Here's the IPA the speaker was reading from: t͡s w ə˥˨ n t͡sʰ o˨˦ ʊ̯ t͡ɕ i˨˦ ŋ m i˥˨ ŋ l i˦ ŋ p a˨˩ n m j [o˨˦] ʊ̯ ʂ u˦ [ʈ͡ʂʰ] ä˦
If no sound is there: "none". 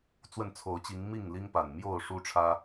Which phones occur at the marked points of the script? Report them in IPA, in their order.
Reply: o˥˨, ʈ͡ʂʰ

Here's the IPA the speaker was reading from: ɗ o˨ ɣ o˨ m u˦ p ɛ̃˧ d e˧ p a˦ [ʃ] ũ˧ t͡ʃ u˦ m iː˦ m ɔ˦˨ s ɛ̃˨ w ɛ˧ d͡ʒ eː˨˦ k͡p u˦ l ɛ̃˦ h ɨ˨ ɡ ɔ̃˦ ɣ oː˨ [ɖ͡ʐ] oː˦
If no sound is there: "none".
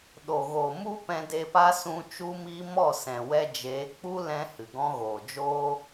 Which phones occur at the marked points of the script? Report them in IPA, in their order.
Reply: s, d͡ʒ

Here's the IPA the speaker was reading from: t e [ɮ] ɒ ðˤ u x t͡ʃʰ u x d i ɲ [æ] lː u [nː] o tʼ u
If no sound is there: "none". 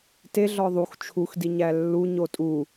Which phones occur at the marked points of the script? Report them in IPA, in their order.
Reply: ɮ, æ, ɲ

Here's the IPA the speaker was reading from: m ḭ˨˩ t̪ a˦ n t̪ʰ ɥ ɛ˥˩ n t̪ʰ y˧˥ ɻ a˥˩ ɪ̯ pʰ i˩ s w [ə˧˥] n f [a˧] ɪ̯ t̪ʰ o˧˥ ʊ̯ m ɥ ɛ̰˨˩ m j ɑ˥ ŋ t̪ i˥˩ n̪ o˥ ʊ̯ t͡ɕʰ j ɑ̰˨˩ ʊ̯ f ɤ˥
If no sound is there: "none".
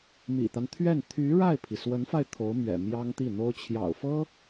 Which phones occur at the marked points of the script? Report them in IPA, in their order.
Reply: ə˧˥, a˧

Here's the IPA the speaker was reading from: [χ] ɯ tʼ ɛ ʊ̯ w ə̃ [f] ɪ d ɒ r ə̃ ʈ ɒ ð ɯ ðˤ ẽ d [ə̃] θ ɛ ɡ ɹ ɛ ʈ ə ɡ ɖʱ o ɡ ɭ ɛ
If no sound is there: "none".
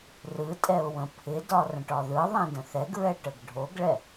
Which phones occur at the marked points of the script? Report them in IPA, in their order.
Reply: r, pʰ, ə̃

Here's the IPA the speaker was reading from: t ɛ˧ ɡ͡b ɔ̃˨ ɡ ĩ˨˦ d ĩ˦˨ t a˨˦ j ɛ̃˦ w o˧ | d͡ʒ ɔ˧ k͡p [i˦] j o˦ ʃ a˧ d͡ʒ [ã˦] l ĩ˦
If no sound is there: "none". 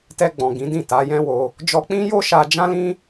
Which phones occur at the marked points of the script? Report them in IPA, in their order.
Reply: ĩ˦, ã˦

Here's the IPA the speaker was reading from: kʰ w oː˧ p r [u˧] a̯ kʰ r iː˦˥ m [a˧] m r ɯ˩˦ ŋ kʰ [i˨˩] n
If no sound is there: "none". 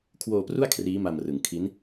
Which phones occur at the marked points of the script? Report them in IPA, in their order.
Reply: u˥˩, a˧, i˦˥

